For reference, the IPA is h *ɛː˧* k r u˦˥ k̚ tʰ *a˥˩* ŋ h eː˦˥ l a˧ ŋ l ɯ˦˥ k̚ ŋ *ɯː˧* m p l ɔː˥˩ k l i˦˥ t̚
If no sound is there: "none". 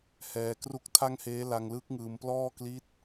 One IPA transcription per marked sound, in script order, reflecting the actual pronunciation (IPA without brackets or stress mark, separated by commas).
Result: ɛː˧, a˥˩, ɯː˧